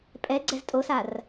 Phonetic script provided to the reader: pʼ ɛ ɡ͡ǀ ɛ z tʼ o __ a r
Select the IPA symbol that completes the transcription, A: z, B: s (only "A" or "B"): B